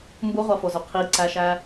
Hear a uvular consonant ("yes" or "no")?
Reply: yes